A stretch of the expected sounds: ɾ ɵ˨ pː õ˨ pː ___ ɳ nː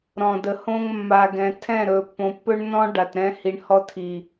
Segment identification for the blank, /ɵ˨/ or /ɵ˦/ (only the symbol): ɵ˦